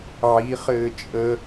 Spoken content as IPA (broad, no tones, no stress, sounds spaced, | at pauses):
ʕ i χ ɘː t͡ʃʼ ə